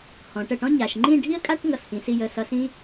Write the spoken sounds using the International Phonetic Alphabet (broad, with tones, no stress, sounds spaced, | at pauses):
h ɔ̃˩˧ ʈ ə˧˩ ʈ ɔ̃˥ ɲ a˩˧ ʃ ŋ͡ǃ ĩ˥˧ ɖʱ i˥ ə̯ kʼ a˥ ʈ ŋ ʌ˧˩ s h ĩ˩˧ s i˥˧ j ə˧˩ s ʌ˧ s ĩ˥